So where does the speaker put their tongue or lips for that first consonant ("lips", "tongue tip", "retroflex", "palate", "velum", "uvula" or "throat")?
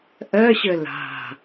throat